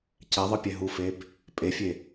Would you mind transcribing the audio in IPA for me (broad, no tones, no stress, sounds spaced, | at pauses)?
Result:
c ɛ ðˤ ɯ pʲ ɛ ɦ u f e b | pʼ e fʲ e